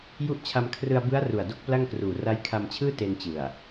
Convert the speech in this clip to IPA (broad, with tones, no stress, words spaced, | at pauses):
ju˦˥ʔt͡ɕʰa˧mkʰrɯ˧a̯bɯ˦˥a̯ ru˨˩a̯do˥˩k̚pla˥˩ŋkruː˨˩ ra˦˥jkʰa˧mt͡ɕʰɯː˥˩ te˧nt͡ɕɯ˨˩a̯